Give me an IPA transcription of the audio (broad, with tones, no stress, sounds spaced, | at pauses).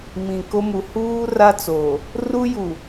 m ĩ˨ k o˦ m u˨ h uː˦ r a˦ t͡s o˨ | r u˦ j u˨